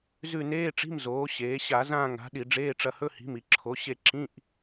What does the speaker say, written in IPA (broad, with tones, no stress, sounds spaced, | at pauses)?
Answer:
z ʉ˦˨ n eː˧˥˧ ʈ͡ʂ i̤˧˥˧ m z oː˩˥ ɕ eː˩˥ ɕ a˧˩˧ z ãː˦˨ ŋ a̤˩˥ ɗ i˧˩˧ ɖ͡ʐ eː˧˥˧ ʈ͡ʂ ɐ˦˨ h ɵ˧˥˧ h i̤˩˥ m i˩ ǁʰ o˩˥ ɕ e˦˨ ǁ ĩ˧˥˧ ʔ